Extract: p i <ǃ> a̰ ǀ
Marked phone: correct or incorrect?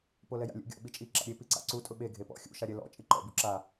incorrect: ǀ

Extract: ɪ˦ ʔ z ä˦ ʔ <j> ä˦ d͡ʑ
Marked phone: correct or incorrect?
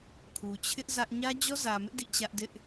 incorrect: ɲ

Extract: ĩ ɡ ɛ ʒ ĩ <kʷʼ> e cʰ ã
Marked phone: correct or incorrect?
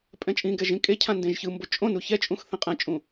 incorrect: kʼ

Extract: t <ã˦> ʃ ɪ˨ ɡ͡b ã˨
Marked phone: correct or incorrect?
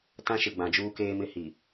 correct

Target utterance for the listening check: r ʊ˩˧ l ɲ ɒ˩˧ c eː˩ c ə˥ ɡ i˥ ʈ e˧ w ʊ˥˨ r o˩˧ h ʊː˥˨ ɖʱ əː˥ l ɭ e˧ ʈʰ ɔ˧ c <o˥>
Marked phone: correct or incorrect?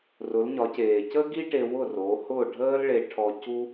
incorrect: u˥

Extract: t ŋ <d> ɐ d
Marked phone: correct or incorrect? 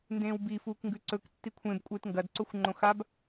incorrect: ɡ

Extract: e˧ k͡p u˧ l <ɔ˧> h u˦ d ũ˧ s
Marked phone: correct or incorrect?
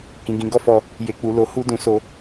incorrect: o˧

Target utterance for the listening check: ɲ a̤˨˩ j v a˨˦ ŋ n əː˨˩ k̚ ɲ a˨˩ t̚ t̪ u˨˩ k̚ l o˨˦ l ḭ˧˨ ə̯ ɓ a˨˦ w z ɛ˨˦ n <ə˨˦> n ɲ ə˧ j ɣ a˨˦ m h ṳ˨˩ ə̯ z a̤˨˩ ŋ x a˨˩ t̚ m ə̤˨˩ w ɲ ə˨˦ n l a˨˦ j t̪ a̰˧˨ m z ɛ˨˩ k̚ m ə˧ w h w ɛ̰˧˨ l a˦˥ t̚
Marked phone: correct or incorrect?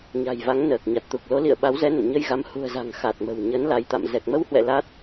incorrect: ə̰˧˨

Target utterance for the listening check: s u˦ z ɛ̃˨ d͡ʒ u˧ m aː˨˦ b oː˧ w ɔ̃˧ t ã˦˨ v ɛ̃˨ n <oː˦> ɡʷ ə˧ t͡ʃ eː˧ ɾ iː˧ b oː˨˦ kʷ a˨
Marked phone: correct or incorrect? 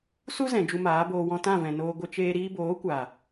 incorrect: oː˧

